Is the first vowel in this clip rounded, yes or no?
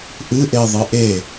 no